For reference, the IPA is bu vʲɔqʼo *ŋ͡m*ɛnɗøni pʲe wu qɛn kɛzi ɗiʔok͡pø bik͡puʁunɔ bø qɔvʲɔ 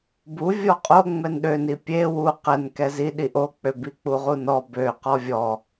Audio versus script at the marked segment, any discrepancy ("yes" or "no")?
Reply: no